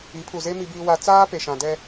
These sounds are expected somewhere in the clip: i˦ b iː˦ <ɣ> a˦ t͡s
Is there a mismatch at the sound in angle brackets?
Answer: yes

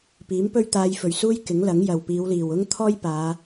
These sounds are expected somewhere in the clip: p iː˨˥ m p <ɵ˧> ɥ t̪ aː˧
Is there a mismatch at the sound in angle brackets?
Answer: yes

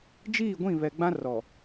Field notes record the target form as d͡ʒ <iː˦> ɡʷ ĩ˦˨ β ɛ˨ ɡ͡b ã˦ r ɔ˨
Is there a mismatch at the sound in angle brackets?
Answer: yes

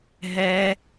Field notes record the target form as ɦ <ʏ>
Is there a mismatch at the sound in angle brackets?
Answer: yes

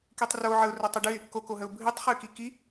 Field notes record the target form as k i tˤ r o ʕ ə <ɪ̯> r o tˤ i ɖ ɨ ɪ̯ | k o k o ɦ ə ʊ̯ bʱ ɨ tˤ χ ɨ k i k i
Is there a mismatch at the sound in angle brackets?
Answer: yes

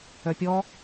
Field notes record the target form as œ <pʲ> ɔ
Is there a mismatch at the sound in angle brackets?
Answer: no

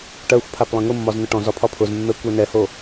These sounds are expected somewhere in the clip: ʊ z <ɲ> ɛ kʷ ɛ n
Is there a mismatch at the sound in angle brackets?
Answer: yes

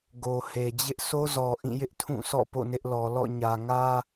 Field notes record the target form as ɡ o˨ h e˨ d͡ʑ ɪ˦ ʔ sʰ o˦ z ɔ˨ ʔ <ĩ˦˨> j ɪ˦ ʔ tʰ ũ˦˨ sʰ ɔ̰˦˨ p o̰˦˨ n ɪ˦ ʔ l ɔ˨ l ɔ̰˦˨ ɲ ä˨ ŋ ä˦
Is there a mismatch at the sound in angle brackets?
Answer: no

